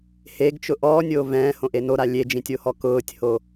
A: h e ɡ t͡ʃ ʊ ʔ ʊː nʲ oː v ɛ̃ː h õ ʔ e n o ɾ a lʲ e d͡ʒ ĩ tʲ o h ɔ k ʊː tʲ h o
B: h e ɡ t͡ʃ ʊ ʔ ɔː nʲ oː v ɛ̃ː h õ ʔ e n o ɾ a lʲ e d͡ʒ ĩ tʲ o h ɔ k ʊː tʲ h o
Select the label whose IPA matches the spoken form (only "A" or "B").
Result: B